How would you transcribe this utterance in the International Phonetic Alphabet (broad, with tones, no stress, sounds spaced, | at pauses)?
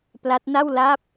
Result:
p l a˦˥ t̚ n a˥˩ w l a˦˥ p̚